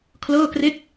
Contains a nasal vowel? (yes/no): no